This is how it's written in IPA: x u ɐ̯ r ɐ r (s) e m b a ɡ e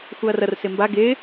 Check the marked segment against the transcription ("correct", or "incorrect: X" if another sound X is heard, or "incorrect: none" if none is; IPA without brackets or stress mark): correct